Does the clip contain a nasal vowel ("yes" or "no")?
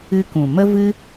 yes